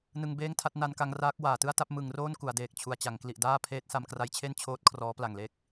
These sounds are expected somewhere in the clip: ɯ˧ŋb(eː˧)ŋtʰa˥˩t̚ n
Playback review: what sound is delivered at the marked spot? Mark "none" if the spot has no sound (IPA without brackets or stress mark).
eː˥˩